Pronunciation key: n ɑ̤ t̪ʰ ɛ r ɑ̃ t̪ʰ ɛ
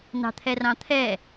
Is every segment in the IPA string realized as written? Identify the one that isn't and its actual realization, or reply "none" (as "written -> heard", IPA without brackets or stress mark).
none